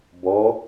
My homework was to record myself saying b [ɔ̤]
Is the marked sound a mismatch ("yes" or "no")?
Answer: yes